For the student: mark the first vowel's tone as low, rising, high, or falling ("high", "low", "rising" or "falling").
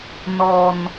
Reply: low